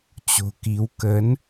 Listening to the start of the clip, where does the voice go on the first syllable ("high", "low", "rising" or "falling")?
low